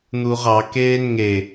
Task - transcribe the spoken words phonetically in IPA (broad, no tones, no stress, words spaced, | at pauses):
n̪uʁɑ keːnŋe